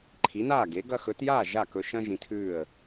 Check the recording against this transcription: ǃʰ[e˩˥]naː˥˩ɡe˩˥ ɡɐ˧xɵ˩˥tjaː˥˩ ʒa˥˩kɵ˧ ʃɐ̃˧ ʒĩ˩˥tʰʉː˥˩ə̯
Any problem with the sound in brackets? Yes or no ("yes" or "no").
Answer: yes